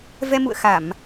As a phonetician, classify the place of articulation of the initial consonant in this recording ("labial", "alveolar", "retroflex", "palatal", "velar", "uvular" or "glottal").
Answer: labial